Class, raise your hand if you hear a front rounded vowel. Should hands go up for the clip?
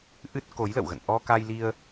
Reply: no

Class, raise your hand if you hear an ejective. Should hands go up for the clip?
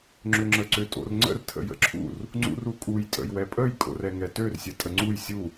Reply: yes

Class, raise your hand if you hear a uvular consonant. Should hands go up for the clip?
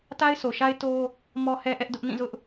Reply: no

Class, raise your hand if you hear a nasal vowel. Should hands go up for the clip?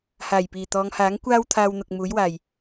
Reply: no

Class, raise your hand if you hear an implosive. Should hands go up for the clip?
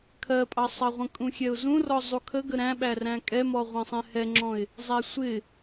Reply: yes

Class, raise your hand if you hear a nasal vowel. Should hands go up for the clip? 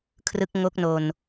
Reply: no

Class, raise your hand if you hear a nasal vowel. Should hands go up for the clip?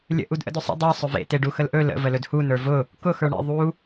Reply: no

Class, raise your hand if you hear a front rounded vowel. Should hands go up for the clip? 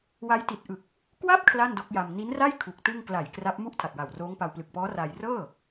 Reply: no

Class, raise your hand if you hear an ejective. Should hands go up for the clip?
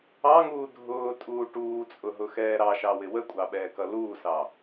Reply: yes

